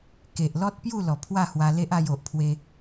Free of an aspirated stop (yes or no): no